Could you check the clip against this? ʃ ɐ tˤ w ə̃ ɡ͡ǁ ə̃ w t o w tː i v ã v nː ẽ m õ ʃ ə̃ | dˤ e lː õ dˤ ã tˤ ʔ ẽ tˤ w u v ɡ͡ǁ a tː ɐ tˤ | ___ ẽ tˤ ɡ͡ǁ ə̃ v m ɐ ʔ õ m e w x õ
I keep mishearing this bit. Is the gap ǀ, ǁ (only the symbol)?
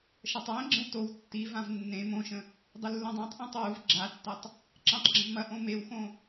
ǁ